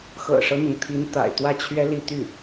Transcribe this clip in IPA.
x ɤ̰˨˩ ʂ ɤ˦ n̪ ʊ˩ ŋ t̪ʰ i˧˥ n t̪ a̰˨˩ ɪ̯ t̪ w ä˥˩ t͡ɕʰ ɥ ɛ˥ l i˥˧ t̪ y˥˩

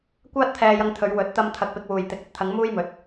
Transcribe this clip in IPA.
kʷ aː˥ t̚ t̪ʰ ɛː˧ j ɐ˧ ŋ t̪ʰ ɵ˨˧ ɥ w ɵ˨˥ t̚ t̪ ɐ˧ m t̪ʰ ɐ˧ k̚ p ɪ˧ k̚ w uː˨ j t̪ ɪ˨˥ k̚ ɵ˧ t̚ t̪ʰ ɐ˨˧ ŋ m uː˥ j m ɵ˨˥ t̚

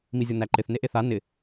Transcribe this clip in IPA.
m i zʲ ɔ n æ ǃ ɪ θ n e ʔ e θ a n ɪ

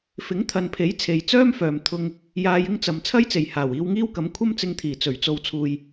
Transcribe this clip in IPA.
f ɪ˨˥ ŋ t̪ʰ ɐ˨ n pʰ e˨˥ j t͡sʰ e˨ j t͡s œː˥ m f œː˨ m t̪ʰ ʊ˧ ŋ | j aː˧ j ɪ˥ ŋ t͡s ɐ˨ m t͡sʰ ɐ˥ j t͡s e˨˩ j h aː˨˩ w iː˧ w ŋ iː˥ w k ɐ˨˥ m kʷʰ ɐ˥ m t͡s ɪ˧ ŋ t̪ʰ iː˨˩ t͡s ɵ˨˩ ɥ t͡s o˨ w t͡sʰ uː˨ j

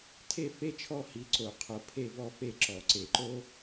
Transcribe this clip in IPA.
tʰ e˥˩ f e˥ t͡ʃʰ ɔ˥˧ h i˨˦ ǀ o˧˩˧ qʰ ʊ˨˦ pʰ e˥˧ v ɔ˥˧ f e˥˩ ǁ ɔ˧˩˧ ǀ e˧˩˧ ǃ o˥

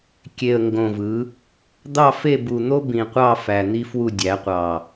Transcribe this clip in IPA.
kʲ e˨˩ ə̯ ŋ ɡ õ˨˩ v ɯ˩˧ | d̪ ɑ˦˨ f e˦˨ b u˨˩ n̪ o˦ b ĩ˨˩ qʷ ɑ˦˨ f æ˨˩ n̪ i˦ f w u˦˨ dʲ æ˩˧ qʷ ɑ˨˩

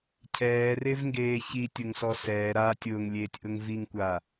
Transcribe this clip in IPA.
cʰ ɛː r e v ŋ ɡ eː ç i tʲ ʊ ŋ s ɔ s ɛː ɾ a tʲ ʊː ŋ lʲ eː tʲ ʔ ʊ ŋ v i ŋ kʷ a

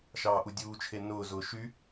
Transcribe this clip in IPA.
ʃ ɑː ʔ u dʲ uː t͡ʃʰ e n ʊː z ʊː ʃ y

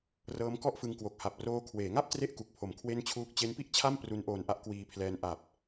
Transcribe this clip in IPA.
r ɤː˦˥ m k ɔ˥˩ ʔ f ɯ˧ ŋ k w o˨˩ k̚ h a˨˩ p̚ r oː˦˥ kʰ w eː˩˦ ŋ a˥˩ p̚ t r e˥˩ ʔ k u˨˩ k̚ pʰ o˨˩ m kʰ w e˥˩ n t͡ɕʰ uː˥˩ k̚ t͡ɕ e˦˥ n p i˥˩ ʔ t͡ɕʰ a˥˩ m p r u˦˥ n ʔ oː˧ n ʔ a˦˥ ʔ k w iː˧ pʰ l ɛː˦˥ n ʔ a˨˩ p̚

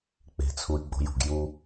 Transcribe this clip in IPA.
k͡p e̤˩ t͡sʰ u˩ i̯ ɡ͡b o̤˩ j o̤˩ ɡ j u˨

